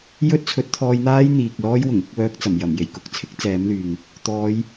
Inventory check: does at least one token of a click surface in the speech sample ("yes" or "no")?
no